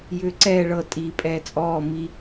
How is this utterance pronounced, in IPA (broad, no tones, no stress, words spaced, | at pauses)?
jʏːǀɛː ɭɤ tʼi pʼɛːt͡sʼɔː mi